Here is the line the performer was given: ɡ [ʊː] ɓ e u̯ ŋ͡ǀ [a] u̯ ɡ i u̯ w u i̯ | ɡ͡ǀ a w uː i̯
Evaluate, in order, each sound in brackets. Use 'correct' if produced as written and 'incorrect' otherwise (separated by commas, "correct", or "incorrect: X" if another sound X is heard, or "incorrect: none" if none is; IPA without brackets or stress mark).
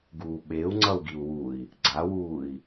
incorrect: uː, incorrect: ʌ